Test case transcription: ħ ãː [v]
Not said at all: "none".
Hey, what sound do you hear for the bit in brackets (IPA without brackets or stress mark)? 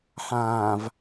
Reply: v